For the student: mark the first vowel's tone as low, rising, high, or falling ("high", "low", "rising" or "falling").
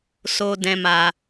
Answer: high